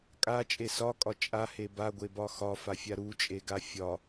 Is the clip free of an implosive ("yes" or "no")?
yes